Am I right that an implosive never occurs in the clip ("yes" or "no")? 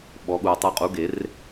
no